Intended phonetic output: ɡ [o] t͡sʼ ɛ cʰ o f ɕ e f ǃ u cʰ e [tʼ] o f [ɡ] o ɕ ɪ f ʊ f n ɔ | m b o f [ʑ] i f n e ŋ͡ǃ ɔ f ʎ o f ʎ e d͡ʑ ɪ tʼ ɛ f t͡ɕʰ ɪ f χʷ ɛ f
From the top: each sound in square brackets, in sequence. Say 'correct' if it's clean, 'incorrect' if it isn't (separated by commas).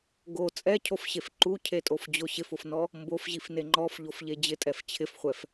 correct, correct, incorrect, correct